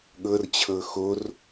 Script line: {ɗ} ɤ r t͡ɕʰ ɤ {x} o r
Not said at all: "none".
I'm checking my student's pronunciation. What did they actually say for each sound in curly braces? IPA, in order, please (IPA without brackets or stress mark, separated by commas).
ɠ, x